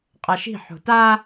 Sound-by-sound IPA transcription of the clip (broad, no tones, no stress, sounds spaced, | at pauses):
qʼ a ʃ i̤ ħ o̤ t a